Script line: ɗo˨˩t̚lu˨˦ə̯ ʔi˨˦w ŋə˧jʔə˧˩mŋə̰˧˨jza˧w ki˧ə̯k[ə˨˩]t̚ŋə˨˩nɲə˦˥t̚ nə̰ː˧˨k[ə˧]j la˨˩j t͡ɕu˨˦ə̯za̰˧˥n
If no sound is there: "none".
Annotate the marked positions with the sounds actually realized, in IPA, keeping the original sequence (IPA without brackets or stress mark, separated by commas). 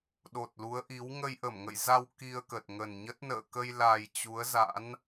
ə˨˩, ə˧